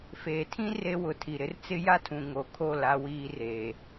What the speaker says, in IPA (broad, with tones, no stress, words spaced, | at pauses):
feː˨tʰĩ˦ re˦ wʊ˨ tʰi˨ɾɪ˦rt͡sɪ˦ ja˦tʰũ˨ ŋo˨kʰo˦˨ la˦wiː˦reː˨